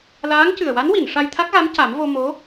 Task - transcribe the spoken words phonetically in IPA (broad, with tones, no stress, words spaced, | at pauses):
laː˧˥ŋ cɨ˨˩ə̯wa˧˥nwi˨˩˨n ʂa˧jt̪ʰa˦˥k̚ɣa˧˥m ca˨˩˦mvo˧ mo˧˥